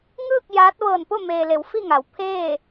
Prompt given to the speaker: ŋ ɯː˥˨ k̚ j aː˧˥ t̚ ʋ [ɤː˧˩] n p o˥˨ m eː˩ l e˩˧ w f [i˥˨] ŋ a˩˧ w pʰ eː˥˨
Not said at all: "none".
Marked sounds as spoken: ɤː˧˩, i˥˨

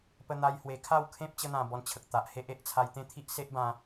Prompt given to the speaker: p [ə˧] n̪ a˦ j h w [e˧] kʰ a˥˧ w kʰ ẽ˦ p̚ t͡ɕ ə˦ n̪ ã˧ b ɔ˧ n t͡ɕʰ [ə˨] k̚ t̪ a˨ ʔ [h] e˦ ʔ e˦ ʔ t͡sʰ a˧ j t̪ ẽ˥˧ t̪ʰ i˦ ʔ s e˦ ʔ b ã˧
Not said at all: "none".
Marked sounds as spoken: ə˦, e˧, ə˨, h

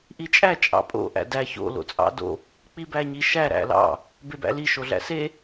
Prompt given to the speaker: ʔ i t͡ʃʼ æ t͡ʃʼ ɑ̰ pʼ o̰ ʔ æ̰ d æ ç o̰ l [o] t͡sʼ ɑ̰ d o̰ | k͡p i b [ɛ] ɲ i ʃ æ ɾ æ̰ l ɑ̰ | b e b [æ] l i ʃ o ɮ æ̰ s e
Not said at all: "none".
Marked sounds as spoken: o̰, æ, æ̰

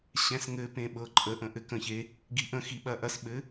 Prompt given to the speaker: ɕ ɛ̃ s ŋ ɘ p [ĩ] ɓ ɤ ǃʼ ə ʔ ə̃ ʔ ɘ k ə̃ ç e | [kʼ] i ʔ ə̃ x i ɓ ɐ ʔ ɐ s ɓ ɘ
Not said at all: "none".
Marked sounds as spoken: ẽ, ɡ

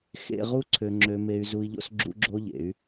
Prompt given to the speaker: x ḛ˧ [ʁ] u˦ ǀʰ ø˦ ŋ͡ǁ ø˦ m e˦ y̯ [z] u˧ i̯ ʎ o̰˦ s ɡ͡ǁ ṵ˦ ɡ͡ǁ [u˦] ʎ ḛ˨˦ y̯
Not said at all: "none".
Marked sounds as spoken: ʁ, z, o˦

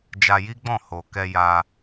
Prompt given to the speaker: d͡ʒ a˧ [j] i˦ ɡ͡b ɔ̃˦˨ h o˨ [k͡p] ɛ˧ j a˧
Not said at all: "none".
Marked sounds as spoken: j, k

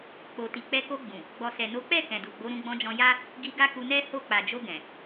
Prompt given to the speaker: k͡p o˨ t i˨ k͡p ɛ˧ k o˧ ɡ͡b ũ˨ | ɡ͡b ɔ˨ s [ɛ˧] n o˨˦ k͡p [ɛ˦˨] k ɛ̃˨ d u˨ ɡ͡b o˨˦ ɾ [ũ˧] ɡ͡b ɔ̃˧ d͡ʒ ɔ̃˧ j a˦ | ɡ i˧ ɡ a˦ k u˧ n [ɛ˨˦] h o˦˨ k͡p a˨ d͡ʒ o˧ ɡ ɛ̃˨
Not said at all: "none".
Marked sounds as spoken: ɛ˨, ɛ˦˨, ũ˧, ɛ˦

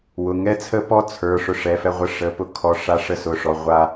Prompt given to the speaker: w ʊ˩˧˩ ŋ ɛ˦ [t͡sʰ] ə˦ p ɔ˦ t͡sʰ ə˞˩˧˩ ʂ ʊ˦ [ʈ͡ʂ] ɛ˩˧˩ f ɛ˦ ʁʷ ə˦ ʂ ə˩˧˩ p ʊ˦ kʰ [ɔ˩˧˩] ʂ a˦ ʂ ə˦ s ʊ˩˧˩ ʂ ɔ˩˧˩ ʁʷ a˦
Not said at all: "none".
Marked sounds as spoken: t͡sʰ, ʂ, ɔ˩˧˩

